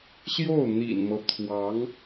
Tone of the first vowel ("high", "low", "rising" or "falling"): falling